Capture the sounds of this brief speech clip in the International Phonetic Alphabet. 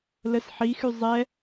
l ə s ħ i x y zˤ ɛ

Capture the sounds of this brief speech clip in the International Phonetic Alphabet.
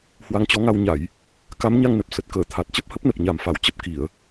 h w a˨˦ ŋ t͡ɕ ɔ˨˦ ŋ a˧ w ɲ a˧˩˨ j | k a˨˦ m ɲ a˧ ŋ n ə˨˩ p̚ s ə˨˩ t̚ k əː˧˩ t̪ʰ a˨˩ t̚ t͡ɕ ə˦˥ p̚ h ə˦˥ p̚ n ə˨˩ p̚ ɲ a˨˩ m f a˧˩ w t͡ɕ ə˦˥ p̚ k i˧˩˨ ə̯

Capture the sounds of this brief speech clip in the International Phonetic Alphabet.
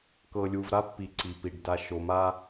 k ɤ˨ lʲ u˨ v ɾ a˦ pː i˨ ǀ i˨ p i˨ ɖ d a˨ ʃ o˨ m a˦

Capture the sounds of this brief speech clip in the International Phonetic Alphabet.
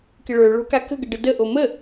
k ɪ ɭ ə˞ ɭ o̤ k a k ə̤ ɡ ə ɖ ə d ə ʔ o m ə

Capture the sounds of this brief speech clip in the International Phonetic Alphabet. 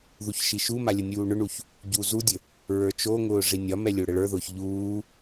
ð u ç ʃ i ʃ u m a lʲ ə nʲ uː ɳ ʊ ɳ u ç | ɟ u z u dʲ ə | ɹ ə˞ t͡ʃ o ŋ ʊː ʐ i nʲ ɒ m ɛ lʲ o ɽ ə ɭ ə˞ ð ʊː ç ʎ uː

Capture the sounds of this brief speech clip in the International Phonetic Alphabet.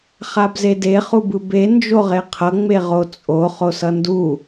χ a b z e d e χ u b ɯ b e n d͡ʒ o ʁ e qʰ ʌ ŋ͡m e ʁ o t͡sʼ o χ o s ʌ n d u

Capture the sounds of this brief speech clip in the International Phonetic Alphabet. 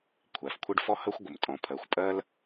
kʷʰ æ˩ f kʷʰ ɘ˥ ɖ f ɔ˥ h əː˥ xʷ ɡʷ ə˩ m tʼ ɔ̃˩ pʰ ɜ˩ xʷ pʼ ɜ˥ l

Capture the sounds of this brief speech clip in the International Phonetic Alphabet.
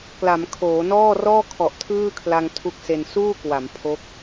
k l a˩˦ m kʰ oː˩˦ n ɔː˥˩ r ɔː˥˩ kʰ ɔ˨˩ ʔ tʰ ɯː˥˩ kʰ l a˧ ŋ tʰ u˦˥ k̚ s e˧ n s uː˥˩ k w a˩˦ m pʰ o˦˥ k̚

